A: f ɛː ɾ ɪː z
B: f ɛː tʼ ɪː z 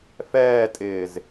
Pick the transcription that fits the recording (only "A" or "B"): B